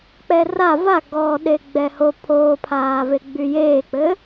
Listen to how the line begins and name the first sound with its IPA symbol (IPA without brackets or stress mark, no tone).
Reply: k͡p